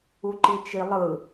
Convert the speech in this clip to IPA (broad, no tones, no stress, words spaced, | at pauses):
uǃit͡ʃilˠɯ